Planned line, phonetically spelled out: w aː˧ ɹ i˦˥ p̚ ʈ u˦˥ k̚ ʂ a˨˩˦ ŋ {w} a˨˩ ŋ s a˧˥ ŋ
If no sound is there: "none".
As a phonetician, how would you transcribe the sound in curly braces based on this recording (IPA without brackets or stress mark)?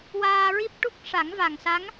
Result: v